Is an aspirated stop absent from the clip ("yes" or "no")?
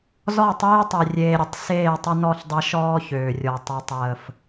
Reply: yes